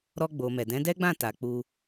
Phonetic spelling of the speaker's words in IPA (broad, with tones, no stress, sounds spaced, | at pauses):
ɾ ɔ˧ ɡ͡b o˨ m ɛ˨ d ɛ̃˨˦ d ɛ˦ ɡ͡b ã˦˨ t a˨ k͡p u˧